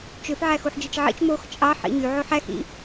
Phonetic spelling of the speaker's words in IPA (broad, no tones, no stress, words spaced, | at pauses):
t͡ʃøf ʕæxuħd͡ʒɯt͡ʃʕḭt͡ʃ mox t͡ʃʼɑħ ḭɲy ʕoħæx ḭ